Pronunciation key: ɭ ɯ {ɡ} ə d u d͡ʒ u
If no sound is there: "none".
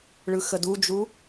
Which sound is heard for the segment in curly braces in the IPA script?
x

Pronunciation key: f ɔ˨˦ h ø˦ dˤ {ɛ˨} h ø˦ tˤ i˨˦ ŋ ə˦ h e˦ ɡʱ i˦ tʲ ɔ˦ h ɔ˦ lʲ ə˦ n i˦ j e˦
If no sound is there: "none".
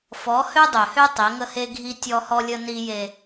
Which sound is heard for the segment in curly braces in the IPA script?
ø˨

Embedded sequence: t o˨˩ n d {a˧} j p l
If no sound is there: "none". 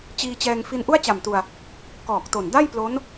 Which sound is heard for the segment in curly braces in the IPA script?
a˥˩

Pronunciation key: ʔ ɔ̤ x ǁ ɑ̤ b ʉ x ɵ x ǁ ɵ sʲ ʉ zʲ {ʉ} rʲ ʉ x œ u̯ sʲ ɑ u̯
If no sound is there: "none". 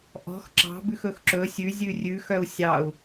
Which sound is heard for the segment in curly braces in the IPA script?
ʉ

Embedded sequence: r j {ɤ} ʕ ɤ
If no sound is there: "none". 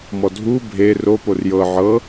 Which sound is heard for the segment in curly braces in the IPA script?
ɤ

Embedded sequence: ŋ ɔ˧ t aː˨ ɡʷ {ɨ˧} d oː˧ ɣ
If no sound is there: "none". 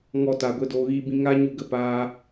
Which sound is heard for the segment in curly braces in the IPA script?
e˧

